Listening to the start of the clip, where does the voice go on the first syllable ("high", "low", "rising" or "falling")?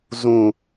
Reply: high